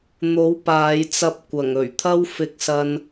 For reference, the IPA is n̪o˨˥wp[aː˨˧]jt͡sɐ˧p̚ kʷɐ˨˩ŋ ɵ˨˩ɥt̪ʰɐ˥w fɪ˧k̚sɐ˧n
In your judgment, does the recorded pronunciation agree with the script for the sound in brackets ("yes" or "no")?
yes